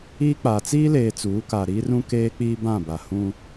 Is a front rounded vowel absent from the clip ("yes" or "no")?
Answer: yes